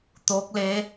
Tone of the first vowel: rising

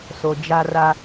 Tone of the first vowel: low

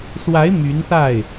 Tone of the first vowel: rising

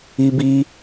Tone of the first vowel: high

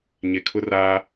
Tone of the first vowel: low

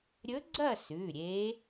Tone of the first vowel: rising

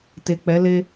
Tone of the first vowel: low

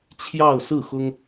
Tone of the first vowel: falling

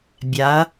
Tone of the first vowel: rising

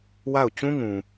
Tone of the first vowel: falling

